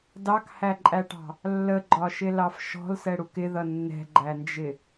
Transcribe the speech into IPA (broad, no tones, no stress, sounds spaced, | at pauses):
d ɑ k h æ ǃʼ æ ʈ ɑ̤ | lː ə ɡ͡ǃ ɒ ʃ ɪ l ɑ f ʃ ɔ̤ l s ɛ ɽ u k ɪ ð ʌ nː ɛ̤ ɡ͡ǃ æ n d͡ʒ ɪ